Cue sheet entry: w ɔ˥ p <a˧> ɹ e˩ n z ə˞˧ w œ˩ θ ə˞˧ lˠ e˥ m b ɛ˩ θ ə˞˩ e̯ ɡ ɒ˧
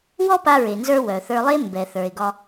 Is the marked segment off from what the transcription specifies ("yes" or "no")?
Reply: no